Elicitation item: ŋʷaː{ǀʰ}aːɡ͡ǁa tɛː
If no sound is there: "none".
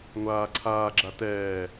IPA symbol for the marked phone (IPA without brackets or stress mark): ǀʰ